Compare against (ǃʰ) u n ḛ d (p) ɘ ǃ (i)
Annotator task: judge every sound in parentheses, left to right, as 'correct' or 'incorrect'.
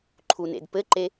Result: correct, correct, incorrect

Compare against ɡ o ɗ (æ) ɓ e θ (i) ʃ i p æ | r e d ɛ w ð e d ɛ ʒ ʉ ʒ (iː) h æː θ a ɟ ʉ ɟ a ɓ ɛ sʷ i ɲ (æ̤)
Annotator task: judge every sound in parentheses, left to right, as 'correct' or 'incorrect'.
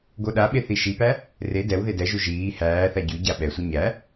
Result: incorrect, correct, correct, incorrect

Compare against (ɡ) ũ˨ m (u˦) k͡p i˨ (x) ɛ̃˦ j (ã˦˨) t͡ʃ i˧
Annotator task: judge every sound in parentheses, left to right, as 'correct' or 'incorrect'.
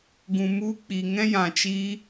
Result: correct, incorrect, incorrect, incorrect

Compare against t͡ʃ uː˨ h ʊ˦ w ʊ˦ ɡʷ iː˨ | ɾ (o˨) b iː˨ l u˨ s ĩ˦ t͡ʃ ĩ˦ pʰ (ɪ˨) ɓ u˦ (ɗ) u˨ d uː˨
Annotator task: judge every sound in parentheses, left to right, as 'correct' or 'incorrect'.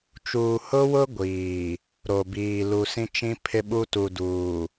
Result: correct, incorrect, incorrect

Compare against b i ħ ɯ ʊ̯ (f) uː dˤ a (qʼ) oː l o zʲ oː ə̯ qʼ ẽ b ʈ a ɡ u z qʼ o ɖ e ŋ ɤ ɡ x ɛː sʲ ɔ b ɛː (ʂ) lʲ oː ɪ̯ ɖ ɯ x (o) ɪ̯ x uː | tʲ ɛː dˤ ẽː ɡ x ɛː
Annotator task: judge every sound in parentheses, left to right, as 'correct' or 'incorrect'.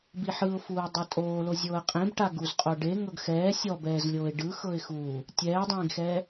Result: correct, incorrect, incorrect, incorrect

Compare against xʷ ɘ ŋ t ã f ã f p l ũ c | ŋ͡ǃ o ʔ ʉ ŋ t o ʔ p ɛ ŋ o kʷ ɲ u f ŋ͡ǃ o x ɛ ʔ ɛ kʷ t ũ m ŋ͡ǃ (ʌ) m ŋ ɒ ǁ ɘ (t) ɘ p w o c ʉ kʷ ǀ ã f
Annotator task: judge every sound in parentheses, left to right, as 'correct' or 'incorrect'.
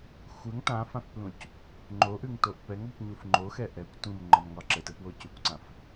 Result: incorrect, correct

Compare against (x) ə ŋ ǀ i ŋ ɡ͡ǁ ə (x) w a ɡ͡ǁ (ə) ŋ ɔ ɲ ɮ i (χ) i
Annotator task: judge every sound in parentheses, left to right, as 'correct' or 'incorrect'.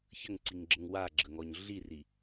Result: incorrect, incorrect, correct, incorrect

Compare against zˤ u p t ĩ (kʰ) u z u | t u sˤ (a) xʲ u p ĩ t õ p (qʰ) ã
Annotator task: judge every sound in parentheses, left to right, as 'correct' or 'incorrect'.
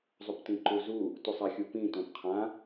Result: incorrect, correct, correct

